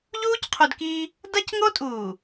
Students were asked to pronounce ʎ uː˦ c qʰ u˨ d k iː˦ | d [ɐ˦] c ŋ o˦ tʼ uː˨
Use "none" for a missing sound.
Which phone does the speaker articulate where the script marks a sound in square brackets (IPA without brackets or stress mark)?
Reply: ɐ˦